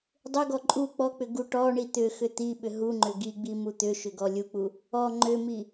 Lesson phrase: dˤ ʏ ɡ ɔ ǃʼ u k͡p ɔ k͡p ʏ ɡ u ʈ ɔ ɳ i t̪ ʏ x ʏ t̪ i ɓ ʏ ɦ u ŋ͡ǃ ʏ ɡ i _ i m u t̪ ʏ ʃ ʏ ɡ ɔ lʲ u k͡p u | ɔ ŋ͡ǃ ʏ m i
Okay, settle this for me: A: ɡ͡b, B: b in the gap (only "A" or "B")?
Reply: A